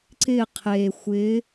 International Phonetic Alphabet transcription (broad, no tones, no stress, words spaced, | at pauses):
ǀɪ qʰe xʷɪ